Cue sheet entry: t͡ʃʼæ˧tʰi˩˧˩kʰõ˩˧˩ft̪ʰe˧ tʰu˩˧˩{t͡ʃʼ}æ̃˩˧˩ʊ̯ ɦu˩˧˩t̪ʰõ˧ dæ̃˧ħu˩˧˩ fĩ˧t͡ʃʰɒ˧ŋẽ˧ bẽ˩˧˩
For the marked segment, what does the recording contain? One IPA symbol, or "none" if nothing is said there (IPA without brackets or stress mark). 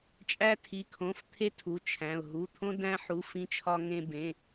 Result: t͡ʃʰ